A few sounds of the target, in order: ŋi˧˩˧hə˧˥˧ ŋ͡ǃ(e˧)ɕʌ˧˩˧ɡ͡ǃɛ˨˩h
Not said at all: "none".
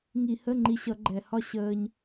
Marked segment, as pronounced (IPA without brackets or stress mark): i˧